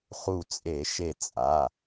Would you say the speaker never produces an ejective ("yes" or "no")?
no